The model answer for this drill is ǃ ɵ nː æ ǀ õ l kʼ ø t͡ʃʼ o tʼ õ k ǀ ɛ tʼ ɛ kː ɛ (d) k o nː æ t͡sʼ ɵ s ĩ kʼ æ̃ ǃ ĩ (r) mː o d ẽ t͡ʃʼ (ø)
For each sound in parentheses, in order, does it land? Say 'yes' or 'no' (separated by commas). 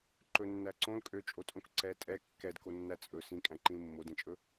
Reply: yes, no, no